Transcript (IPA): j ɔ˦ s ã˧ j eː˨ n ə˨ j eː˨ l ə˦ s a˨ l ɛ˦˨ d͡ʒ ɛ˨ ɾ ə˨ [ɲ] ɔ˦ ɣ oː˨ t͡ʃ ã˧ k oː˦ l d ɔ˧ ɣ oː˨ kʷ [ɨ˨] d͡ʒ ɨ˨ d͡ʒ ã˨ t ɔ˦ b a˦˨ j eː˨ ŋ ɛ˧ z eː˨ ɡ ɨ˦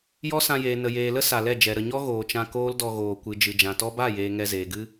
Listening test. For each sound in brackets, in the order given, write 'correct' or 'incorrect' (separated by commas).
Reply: correct, correct